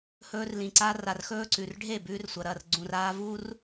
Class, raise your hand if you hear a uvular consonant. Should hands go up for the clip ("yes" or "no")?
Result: no